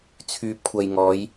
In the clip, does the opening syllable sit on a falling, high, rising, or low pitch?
low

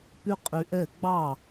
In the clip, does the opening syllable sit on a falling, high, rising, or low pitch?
high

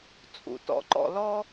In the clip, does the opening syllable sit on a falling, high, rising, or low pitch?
low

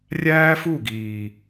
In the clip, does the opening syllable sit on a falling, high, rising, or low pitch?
high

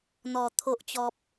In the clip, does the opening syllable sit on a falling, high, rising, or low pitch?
low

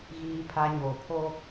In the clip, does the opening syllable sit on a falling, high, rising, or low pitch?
high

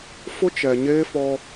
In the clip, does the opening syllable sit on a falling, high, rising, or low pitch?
high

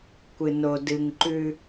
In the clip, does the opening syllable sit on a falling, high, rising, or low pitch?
low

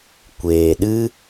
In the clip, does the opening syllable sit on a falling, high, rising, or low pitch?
low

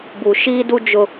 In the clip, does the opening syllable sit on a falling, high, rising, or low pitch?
low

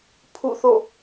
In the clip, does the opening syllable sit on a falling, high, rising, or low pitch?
falling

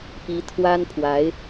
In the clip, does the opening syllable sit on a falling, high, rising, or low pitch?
rising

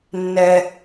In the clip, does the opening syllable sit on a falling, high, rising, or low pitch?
high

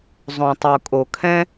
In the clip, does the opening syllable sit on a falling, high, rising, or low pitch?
low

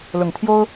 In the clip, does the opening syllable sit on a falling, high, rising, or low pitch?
low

